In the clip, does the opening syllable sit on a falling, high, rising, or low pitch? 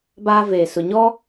high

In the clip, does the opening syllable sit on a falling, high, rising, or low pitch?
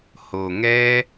low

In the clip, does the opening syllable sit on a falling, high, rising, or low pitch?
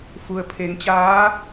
low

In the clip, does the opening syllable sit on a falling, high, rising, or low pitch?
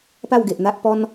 falling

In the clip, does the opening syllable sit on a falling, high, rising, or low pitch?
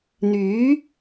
rising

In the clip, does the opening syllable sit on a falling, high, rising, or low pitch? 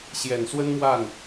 low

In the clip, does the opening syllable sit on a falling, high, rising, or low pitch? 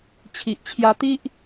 low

